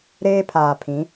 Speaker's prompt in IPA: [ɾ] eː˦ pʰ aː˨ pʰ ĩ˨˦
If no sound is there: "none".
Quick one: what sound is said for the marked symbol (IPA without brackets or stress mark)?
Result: ɾ